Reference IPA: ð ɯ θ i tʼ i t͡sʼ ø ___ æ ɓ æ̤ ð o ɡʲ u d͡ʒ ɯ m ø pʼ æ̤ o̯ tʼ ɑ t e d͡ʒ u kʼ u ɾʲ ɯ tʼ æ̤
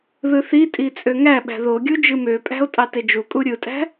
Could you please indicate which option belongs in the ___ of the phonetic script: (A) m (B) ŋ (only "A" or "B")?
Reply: B